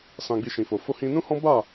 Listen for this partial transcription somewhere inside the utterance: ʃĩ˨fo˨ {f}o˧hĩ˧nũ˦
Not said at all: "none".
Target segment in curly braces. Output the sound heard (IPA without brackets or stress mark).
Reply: f